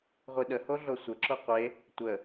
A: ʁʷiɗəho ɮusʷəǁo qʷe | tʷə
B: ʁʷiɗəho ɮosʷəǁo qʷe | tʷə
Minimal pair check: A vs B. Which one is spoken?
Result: B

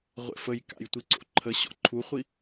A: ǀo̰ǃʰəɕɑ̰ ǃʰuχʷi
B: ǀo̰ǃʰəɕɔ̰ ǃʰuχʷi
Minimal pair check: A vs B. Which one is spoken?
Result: B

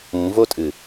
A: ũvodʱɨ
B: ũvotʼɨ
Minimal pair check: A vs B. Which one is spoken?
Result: B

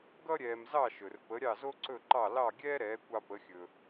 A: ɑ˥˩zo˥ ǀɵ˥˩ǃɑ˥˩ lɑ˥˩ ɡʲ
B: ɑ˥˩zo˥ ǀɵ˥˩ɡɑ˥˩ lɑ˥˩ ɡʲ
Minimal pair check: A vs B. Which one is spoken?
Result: A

